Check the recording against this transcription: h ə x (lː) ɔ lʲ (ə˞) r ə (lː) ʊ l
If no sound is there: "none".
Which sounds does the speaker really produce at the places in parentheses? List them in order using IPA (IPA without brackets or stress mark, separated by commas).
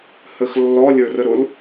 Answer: lː, ə˞, ɾ